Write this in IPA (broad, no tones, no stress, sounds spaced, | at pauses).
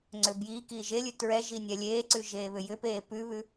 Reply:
ŋ͡ǀ ʏ b j iː k iː ʒ e lʲ ʉ t ɹ ɛ ʒ i nʲ ɛ lʲ eː ǀ ʉ ʒ eː β ʏ j ʏ p eː p ʉ β ʉ